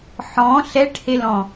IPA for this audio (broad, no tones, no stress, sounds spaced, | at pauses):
ħ ɔ̃ ɬ ɛ ʈ h e l ɔ̃